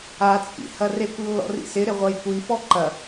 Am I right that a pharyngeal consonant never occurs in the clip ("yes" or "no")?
yes